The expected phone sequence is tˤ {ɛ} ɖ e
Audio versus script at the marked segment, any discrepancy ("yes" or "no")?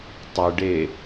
yes